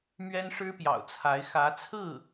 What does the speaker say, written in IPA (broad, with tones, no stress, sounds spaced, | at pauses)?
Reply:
m ɥ ɛ˥ n ʂ ɻ̩˥ p j ɑ̰˨˩ ʊ̯ t͡sʰ a˧˥ ɪ̯ x ä˧˥ t͡sʰ ɹ̩˥˩